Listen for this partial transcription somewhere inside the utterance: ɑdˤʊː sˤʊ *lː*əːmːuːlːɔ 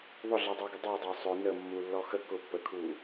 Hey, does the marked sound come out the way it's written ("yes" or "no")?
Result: no